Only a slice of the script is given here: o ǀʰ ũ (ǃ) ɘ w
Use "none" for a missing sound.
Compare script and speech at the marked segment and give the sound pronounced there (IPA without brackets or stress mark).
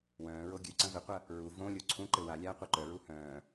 ǃ